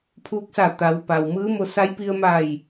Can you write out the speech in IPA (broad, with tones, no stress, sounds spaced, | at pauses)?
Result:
pʰ uː˧ k̚ s a˧˩ t̪ a˩˧ w p a˩ w m ɯː˧˥ m o˧ s a˧˥ j p i˧ ə̯ m a˧˩ j